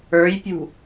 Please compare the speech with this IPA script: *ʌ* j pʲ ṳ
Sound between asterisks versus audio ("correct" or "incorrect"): incorrect